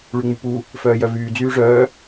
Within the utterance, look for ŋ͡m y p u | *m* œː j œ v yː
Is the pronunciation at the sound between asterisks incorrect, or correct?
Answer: incorrect: f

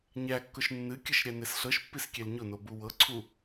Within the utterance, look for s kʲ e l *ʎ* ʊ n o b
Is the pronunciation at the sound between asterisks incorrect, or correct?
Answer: incorrect: ɲ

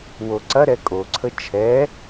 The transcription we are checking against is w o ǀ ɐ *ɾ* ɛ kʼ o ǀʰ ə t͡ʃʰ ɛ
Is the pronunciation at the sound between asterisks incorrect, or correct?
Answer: correct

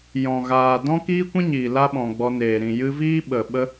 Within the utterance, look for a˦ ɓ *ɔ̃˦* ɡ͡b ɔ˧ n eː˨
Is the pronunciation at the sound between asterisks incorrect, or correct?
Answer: incorrect: ɔ̃˨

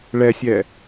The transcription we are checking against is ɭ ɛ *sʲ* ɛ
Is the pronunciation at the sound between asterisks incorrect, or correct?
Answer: correct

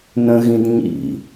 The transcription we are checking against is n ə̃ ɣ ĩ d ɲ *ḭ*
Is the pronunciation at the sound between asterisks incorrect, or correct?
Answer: correct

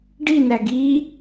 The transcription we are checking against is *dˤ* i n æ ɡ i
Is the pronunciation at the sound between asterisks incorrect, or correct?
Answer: incorrect: ɖ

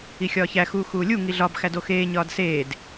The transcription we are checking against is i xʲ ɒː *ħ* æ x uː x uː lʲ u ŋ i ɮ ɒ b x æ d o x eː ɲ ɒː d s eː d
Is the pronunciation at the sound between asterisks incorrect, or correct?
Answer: incorrect: ç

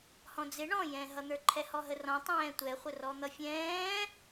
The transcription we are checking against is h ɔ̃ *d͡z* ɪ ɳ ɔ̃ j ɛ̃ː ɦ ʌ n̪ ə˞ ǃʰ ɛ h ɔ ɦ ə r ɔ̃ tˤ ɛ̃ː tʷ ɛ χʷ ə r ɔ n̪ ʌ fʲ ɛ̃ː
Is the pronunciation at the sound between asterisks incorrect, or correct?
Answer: correct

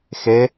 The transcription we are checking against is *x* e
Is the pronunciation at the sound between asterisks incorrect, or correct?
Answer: correct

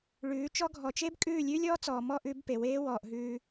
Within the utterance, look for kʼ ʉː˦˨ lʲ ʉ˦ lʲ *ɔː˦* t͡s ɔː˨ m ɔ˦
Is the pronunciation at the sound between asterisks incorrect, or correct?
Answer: correct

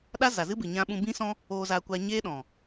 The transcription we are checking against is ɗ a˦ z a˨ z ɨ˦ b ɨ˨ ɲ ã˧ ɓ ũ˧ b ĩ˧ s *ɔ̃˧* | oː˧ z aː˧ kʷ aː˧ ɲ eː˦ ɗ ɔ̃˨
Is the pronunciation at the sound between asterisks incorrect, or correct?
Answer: correct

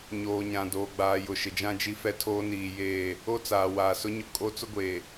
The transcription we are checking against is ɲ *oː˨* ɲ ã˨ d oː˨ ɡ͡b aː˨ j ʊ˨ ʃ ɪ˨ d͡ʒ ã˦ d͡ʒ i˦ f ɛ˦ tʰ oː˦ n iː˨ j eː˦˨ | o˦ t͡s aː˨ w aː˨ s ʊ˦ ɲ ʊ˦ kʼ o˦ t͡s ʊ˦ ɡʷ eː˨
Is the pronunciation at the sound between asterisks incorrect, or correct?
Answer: correct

